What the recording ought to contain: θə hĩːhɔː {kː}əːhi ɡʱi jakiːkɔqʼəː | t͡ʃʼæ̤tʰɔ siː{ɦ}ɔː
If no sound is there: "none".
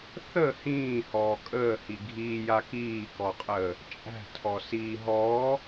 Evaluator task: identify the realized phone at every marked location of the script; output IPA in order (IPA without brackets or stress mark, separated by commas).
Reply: kʼ, ɦ